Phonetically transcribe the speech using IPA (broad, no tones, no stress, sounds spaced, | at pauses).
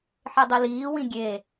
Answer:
ħ e dˤ i l iː w ĩ ɡʲ e